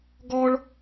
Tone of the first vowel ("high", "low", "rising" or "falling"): high